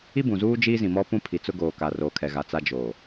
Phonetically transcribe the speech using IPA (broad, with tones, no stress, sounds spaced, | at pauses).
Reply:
i˦ b ũ˨ z uː˦ d͡ʒ iː˦ z ĩ˨ m ɔ˦ p ũ˦ pʰ i˨ t͡s ʊ˦ ɡ oː˨ k a˨ r oː˨ kʰ ɛ˨ ɣ a˨ t͡s a˦ d͡ʒ oː˨